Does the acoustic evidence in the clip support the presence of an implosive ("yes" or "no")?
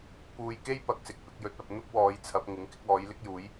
no